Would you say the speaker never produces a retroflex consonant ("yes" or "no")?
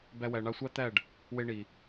no